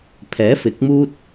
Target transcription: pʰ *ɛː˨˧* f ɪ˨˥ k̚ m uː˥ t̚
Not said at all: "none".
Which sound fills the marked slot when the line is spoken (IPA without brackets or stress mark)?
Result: ɛː˨˥